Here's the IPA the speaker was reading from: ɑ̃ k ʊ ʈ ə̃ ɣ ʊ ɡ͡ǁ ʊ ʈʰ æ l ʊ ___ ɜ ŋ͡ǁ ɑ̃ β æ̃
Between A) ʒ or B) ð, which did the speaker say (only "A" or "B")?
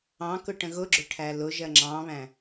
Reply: A